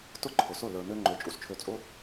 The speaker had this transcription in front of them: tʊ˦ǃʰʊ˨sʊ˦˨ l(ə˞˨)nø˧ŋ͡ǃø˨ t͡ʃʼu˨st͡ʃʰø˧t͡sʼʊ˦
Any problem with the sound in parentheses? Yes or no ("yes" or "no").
no